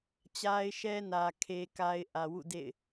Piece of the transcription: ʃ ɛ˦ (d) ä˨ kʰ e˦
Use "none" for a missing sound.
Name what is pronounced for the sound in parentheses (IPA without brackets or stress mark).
n